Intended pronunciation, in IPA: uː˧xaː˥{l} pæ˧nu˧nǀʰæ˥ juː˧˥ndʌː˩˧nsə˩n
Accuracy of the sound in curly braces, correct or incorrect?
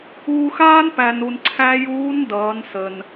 incorrect